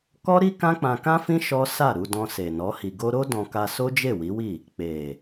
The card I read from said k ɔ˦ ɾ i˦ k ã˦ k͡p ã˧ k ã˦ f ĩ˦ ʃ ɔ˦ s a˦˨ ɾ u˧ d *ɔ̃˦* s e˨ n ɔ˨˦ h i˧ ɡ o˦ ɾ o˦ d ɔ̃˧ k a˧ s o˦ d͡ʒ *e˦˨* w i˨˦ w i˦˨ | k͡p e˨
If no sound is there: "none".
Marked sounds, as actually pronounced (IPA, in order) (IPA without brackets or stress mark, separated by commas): ɔ̃˧, e˦˨